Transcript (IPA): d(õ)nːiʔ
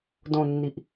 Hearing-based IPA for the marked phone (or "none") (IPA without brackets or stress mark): õ